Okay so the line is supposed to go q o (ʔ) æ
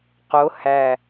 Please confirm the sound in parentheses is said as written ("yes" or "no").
no